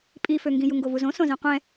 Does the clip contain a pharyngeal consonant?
no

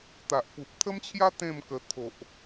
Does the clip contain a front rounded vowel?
no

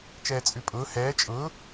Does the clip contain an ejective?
yes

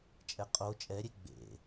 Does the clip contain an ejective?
yes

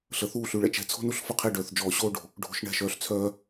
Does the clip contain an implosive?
no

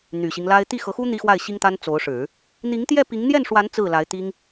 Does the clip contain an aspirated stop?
no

